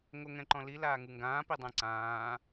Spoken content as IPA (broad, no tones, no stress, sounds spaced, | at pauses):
ŋ o ŋ ɛ̃ ǃ ɔ̃ l i l aː ŋ u ŋ ɡ ãː p i dˤ ɛ̃ ǀ ãː